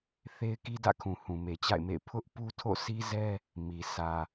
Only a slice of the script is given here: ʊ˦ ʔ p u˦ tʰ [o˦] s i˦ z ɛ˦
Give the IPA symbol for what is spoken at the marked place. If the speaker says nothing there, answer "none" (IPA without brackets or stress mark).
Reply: o̰˦˨